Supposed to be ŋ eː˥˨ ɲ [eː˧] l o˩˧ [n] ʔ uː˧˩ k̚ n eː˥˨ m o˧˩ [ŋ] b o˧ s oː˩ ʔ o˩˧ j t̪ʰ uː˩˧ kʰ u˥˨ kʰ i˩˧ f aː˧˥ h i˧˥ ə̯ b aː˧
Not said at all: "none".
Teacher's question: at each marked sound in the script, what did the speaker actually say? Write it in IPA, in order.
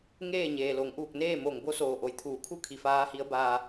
eː˩, ŋ, ŋ

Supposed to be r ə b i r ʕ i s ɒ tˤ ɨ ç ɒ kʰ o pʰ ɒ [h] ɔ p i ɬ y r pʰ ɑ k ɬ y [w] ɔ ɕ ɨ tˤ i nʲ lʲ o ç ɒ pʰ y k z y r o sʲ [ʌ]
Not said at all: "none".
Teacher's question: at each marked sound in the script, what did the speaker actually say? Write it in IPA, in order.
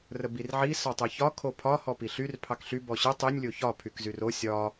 h, b, ɒ

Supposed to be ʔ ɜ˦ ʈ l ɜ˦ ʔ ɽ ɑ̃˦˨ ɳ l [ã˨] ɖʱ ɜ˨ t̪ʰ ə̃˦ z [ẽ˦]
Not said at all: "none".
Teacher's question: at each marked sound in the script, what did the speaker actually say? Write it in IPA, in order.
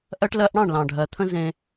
ɑ̃˨, ẽ˦

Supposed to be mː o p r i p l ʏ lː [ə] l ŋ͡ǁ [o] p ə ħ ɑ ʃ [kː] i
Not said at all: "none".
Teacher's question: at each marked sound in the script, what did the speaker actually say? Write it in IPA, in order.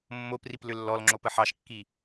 ɔ, o, kː

